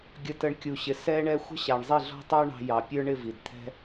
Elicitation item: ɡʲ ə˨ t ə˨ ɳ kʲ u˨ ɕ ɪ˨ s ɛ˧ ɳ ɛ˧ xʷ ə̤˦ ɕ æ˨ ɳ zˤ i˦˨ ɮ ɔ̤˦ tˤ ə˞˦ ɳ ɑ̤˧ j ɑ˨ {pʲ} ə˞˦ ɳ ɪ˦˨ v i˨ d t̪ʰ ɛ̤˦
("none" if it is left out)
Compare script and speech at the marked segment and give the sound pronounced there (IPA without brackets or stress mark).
pʲ